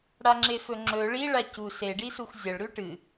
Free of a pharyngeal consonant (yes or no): yes